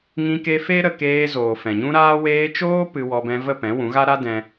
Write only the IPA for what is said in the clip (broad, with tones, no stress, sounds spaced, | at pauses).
ŋ ĩ˧ k e˧ f e˦ ɾ ə˧ k eː˧ z oː˨ f ɛ̃˨ ɲ ũ˦ ɾ aː˦ w eː˧ t͡ʃ oː˦ p ɨ˧ w ɔ˧ b ɛ̃˧ v ə˦˨ p ɛ̃˨˦ w ũ˨˦ ɣ a˦ ɾ a˦ d ɛ̃˦